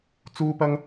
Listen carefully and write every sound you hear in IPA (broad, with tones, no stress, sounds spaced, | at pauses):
t͡s uː˥ p ɐ˥ ŋ